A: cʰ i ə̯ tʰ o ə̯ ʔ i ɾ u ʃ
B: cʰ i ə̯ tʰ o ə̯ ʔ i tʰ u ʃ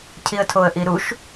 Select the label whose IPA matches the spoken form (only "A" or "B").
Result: A